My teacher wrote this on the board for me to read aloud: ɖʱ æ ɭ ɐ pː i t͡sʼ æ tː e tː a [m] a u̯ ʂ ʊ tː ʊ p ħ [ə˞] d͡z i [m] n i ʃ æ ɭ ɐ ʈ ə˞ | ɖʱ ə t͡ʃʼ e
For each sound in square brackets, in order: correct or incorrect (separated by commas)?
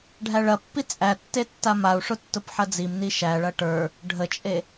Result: correct, incorrect, correct